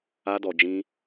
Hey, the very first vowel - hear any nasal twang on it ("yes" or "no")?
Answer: no